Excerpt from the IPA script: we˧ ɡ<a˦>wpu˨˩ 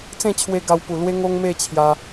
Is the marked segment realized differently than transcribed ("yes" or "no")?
yes